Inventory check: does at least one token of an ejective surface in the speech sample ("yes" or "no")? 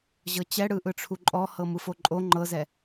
yes